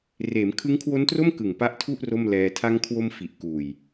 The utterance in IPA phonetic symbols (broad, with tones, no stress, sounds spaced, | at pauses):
r eː˩˦ m kʰ ɯ˦˥ ŋ kʰ w o˦˥ n t r o˥˩ m k ɯ˨˩ ŋ p a˦˥ ʔ tʰ u˥˩ ʔ r o˥˩ m l ɛː˧ tʰ a˧ ŋ kʰ w o˧ m f i˨˩ ʔ k uː˨˩ j